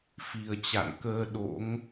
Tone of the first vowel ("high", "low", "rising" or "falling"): low